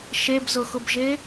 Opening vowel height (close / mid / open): mid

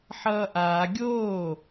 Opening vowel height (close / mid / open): mid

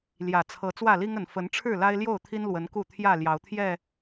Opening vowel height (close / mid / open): open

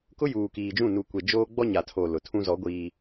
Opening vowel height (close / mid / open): close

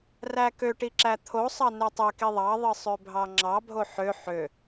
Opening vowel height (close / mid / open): open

